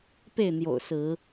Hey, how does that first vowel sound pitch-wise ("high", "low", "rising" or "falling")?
falling